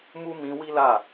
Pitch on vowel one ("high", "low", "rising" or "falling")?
high